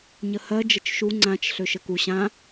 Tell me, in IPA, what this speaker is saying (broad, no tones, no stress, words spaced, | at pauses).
ɲəhɜ d͡ʒət͡ʃʃu ŋ͡ǀãt͡ʃ ɬøʃəku ɕã